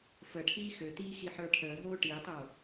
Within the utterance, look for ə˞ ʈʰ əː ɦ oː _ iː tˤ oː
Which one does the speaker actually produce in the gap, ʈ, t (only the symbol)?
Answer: ʈ